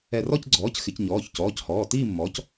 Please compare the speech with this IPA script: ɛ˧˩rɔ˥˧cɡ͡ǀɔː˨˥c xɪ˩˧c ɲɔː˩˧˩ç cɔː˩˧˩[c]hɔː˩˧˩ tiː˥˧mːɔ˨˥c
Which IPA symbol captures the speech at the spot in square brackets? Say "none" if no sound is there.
c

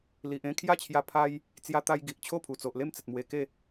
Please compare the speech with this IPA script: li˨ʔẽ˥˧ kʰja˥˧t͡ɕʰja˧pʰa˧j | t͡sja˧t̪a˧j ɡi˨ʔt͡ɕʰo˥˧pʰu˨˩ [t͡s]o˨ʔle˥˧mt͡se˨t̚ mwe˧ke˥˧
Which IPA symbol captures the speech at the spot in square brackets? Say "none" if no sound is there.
t͡s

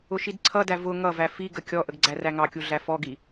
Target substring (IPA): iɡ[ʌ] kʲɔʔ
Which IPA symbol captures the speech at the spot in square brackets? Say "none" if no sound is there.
ə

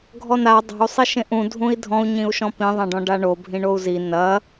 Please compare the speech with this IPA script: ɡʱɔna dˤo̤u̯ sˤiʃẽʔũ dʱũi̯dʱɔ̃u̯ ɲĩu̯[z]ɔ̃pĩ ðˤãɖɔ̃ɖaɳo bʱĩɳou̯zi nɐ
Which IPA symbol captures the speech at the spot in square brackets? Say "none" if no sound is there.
ʃ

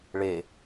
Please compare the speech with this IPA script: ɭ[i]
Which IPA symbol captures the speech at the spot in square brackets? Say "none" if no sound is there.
e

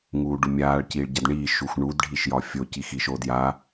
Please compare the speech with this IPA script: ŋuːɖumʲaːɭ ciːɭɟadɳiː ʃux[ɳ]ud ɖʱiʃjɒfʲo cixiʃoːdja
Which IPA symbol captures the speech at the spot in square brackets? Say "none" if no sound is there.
ɳ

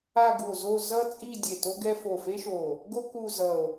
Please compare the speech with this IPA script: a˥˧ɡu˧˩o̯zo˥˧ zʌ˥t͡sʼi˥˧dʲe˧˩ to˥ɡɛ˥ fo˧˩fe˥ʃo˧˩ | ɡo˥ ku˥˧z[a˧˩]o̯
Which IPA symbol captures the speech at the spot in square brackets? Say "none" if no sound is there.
ʌ˧˩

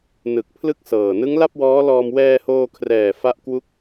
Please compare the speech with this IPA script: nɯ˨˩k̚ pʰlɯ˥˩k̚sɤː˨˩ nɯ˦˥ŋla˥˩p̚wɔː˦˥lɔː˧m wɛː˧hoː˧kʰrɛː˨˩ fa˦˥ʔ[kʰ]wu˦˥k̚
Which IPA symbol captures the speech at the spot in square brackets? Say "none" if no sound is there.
k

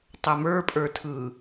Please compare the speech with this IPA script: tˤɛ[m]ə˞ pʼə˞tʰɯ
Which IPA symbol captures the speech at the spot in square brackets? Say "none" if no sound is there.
m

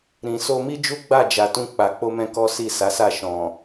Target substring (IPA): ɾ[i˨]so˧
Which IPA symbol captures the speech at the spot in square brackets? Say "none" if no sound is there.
ĩ˨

